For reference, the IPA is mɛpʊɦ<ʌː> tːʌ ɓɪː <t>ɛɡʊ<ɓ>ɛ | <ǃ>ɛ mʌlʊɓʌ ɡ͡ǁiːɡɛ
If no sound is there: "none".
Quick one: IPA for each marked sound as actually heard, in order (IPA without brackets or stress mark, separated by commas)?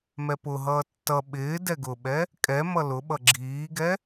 ʌː, d, ɓ, kʼ